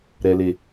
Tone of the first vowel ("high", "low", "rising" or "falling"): low